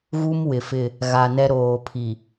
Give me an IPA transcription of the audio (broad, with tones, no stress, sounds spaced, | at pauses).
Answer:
ɣ u˦ m w ɪ˨ f ɪ˦˨ | ɣ a˨ n ɛ˦ ɾ oː˨ pʰ i˨